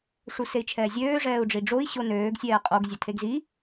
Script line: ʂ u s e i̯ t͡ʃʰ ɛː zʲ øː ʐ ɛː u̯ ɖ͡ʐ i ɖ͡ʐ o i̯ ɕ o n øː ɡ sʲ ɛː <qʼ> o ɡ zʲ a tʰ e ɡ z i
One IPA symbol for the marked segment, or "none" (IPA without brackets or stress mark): qʼ